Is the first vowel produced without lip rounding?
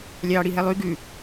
yes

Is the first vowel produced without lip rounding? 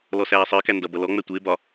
no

